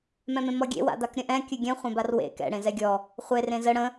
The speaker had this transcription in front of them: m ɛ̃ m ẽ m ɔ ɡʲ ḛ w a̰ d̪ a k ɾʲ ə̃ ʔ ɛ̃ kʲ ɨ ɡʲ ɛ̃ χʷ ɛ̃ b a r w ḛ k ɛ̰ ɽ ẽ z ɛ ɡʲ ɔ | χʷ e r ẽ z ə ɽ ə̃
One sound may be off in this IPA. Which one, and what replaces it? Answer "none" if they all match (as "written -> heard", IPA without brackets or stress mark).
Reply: none